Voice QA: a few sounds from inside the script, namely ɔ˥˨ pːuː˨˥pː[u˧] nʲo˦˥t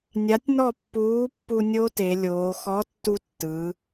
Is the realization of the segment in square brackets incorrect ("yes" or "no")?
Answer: no